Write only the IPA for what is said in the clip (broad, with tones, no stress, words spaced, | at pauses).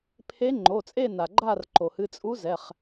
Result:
pʰe˧˥ ŋ͡ǃo˩˧˩t͡sʼe˦˨ na˩ɡ͡ǃa˦˨rǃo˩hɨ˩˧˩ t͡sʼu˧˥ zɛ˩˧˩χ